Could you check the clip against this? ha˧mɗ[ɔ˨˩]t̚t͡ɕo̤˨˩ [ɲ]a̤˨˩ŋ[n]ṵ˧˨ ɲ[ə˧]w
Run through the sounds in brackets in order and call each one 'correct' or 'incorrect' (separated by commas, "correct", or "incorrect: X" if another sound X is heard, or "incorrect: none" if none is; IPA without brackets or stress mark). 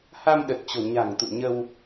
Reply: incorrect: ə˨˩, correct, incorrect: t̪, correct